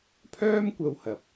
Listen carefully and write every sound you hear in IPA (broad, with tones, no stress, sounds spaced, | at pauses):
pʰ œː˥ m kʷ ɐ˧ w h ɐ˨ p̚